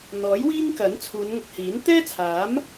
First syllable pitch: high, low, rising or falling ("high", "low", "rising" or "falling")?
rising